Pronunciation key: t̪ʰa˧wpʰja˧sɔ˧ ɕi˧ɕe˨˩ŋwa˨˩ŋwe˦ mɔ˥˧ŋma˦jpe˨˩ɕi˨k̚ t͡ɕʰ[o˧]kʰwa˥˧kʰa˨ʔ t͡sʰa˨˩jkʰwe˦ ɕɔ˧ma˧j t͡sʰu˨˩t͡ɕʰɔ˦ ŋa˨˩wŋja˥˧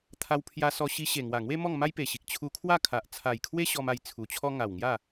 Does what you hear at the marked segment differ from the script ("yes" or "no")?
yes